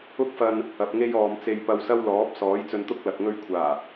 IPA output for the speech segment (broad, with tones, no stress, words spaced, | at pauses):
ʊ˥k̚fɐ˧n | ɐ˨p̚ŋe˥jɔː˨mt͡se˧j pɐ˧wsɐ˥wlɔː˨˥p̚ sɔː˨˥jt͡sɵ˧nt̪ʊ˥k̚ lɐ˨k̚ŋɵ˥ɥ kʷʰaː˨˩